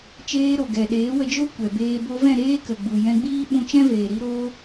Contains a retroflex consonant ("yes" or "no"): no